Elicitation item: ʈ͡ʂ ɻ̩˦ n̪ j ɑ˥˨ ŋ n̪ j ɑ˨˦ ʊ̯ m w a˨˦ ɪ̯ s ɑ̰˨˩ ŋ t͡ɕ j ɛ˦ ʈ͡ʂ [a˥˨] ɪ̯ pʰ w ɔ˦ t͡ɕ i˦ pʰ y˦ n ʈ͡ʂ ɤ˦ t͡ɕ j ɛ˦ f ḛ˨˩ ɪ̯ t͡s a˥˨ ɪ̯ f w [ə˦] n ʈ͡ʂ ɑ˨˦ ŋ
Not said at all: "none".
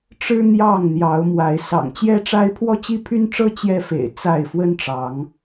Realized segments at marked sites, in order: a˦, ə˦

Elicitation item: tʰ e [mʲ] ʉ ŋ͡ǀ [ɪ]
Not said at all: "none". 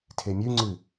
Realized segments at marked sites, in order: mʲ, ɨ

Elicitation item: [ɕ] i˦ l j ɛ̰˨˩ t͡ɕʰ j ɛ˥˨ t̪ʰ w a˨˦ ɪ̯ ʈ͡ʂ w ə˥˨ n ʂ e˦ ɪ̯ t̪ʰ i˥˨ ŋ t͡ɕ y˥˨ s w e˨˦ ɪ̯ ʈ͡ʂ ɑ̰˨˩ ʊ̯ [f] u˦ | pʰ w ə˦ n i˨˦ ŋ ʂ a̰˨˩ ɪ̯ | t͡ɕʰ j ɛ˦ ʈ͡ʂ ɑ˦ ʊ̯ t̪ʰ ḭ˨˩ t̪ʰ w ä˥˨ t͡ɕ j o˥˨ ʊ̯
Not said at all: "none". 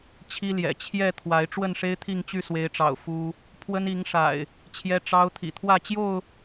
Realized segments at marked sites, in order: t͡ɕʰ, f

